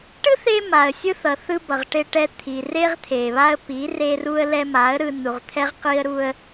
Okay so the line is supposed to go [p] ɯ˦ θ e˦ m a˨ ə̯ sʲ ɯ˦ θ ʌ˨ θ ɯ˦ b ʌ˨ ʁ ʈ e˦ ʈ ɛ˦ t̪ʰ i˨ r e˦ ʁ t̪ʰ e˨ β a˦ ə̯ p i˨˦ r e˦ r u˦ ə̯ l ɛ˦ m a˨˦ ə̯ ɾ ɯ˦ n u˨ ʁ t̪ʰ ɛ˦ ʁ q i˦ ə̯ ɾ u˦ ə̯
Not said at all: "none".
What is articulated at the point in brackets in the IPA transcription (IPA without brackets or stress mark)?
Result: ʈ